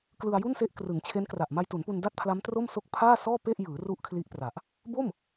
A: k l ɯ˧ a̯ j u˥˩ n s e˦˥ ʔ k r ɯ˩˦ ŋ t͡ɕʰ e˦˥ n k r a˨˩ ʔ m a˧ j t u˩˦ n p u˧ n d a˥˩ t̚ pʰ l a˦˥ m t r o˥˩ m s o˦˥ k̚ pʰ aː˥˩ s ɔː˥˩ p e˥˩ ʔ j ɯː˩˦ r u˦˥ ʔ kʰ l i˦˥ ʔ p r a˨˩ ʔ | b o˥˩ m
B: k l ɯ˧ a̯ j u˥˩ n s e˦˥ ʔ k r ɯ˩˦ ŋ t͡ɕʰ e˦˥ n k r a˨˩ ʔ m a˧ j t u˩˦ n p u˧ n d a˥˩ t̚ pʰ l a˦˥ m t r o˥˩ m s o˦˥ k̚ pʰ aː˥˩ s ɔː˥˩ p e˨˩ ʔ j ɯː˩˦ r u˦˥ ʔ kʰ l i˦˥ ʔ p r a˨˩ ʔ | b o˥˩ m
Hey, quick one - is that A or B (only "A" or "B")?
A